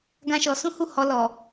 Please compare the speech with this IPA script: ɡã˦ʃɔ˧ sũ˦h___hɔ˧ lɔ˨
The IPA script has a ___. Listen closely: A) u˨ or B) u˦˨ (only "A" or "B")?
B